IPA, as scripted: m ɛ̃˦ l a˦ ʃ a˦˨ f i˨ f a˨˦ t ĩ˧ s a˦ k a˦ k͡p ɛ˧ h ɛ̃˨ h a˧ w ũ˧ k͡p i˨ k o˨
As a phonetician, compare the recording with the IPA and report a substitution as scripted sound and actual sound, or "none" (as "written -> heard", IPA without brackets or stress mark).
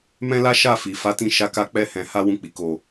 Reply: s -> ʃ